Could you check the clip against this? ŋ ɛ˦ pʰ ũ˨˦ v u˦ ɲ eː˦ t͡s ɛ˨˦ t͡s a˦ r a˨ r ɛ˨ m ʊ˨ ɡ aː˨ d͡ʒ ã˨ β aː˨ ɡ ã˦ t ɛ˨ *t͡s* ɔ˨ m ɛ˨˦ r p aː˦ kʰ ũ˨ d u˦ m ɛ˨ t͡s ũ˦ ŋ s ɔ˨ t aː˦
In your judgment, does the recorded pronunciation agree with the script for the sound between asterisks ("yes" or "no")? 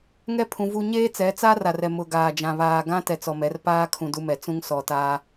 yes